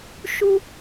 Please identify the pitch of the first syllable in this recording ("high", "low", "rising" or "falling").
high